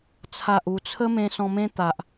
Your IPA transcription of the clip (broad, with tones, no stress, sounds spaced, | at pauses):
t͡sʰ a˨ ʔ u˨˩ t͡sʰ ə˦ m ẽ˧ s ɔ̃˧ m ẽ˦ t̪ a˨ ʔ